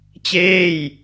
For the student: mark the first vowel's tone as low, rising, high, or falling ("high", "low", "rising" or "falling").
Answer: falling